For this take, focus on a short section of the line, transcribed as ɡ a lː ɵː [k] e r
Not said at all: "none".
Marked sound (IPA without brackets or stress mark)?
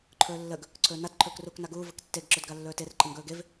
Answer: t